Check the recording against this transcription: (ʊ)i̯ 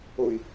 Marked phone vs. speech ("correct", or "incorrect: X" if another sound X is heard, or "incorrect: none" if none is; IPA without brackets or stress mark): correct